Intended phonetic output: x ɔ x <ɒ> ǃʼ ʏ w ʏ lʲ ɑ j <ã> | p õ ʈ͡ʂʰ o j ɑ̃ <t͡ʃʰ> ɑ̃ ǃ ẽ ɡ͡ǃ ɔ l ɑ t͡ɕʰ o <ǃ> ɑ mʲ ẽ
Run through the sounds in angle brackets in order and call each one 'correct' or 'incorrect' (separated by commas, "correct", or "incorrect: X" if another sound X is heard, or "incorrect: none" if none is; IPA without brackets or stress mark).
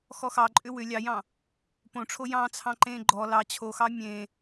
incorrect: ɑ, incorrect: ɑ̃, incorrect: t͡sʰ, incorrect: x